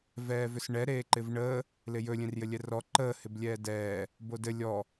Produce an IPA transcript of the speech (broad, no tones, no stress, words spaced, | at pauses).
vɛːvʏsɳɛ ɾeːǃɪvɳəː | lɪjɵ lʲẽrjɘlʲɛrɔ ǃəː hɪblʲɛːdɛː | bodɘ lʲɔ